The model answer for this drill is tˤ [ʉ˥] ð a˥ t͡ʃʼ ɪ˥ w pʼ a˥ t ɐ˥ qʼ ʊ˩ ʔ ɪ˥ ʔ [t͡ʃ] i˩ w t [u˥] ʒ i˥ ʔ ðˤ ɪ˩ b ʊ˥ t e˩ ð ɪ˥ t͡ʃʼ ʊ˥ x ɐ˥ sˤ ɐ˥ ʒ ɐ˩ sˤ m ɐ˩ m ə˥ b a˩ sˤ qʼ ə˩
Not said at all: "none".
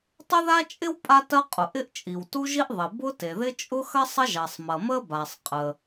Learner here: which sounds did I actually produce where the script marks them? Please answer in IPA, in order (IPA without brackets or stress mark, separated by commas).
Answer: ʊ˥, t͡ʃʼ, u˥